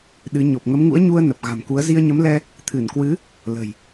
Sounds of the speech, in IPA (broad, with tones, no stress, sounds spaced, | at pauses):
ɗ ɨ˨˦ ɲ o˨˩ p̚ ŋ ə˨˦ m ŋ ṵ˧˥ ə̯ ɲ u˧ ə̯ n ə˨˩ p̚ ɣ a̤˨˩ m k u˨˦ ə̯ z i˧ ə̯ ɲ ə˨˦ m l ɛ˧ | t̪ʰ ɨ˧˩ n k w ɨ˨˦ | l ə̤˨˩ j